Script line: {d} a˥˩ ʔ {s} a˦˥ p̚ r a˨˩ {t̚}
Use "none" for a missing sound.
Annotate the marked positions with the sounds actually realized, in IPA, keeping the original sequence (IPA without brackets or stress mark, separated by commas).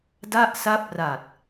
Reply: d, s, t̚